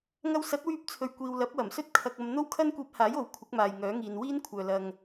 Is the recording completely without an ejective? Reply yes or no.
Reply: yes